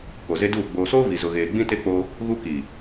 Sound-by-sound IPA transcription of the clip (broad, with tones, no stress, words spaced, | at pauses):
ko˨ze˦duː˦˨ ɡ͡boː˨soː˦ vi˨zʊ˨ ɣeː˨ɡ͡bĩ˦te˦k͡po˦ | ɣu˦ ki˨